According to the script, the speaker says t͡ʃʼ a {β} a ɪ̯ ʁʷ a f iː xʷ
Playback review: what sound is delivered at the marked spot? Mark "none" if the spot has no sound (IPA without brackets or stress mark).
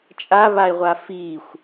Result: β